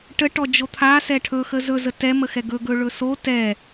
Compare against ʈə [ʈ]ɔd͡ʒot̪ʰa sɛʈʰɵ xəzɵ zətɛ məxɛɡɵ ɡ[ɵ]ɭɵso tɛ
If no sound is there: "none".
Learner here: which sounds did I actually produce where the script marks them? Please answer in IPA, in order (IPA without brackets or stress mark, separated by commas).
ʈ, ɵ